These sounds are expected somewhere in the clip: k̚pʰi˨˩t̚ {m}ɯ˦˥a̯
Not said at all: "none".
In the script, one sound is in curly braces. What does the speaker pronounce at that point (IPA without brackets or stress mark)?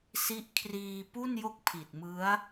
m